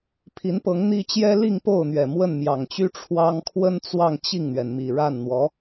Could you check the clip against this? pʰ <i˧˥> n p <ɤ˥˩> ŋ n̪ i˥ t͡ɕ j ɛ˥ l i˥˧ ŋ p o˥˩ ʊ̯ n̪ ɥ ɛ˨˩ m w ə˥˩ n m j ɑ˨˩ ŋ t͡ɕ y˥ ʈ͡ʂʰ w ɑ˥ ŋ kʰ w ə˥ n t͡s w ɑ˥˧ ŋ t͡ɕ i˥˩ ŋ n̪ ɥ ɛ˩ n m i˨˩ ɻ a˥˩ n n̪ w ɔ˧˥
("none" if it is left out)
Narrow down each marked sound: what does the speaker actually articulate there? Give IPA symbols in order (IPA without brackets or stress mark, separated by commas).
i˧˥, ɤ˧˥